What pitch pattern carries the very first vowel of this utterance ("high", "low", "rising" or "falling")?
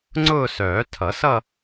falling